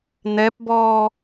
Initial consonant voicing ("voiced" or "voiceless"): voiced